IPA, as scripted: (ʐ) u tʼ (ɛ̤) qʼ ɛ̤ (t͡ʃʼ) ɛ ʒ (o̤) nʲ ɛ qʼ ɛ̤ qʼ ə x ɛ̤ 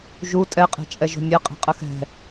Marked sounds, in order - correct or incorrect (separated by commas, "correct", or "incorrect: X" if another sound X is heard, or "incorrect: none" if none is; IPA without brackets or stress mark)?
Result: incorrect: ʒ, incorrect: ɛ, correct, correct